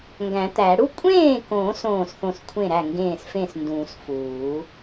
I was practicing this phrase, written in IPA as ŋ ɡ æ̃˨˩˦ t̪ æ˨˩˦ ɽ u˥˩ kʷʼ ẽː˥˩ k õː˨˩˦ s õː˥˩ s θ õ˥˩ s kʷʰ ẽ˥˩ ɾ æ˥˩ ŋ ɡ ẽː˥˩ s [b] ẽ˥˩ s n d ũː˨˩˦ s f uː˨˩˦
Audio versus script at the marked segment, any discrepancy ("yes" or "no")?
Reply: yes